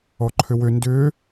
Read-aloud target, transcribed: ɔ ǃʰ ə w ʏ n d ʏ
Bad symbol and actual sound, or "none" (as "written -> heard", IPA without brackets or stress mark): ə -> ʏ